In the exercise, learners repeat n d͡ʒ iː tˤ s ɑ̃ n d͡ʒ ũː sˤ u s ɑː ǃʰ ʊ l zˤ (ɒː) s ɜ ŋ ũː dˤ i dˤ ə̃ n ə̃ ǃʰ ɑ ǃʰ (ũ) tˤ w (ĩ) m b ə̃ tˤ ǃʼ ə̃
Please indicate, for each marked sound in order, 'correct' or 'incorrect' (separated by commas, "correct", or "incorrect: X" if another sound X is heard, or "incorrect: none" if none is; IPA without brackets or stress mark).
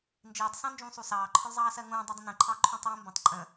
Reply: incorrect: ɑː, correct, correct